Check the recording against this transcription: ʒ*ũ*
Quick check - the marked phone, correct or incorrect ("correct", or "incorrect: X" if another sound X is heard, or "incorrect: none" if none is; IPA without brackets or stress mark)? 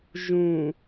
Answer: correct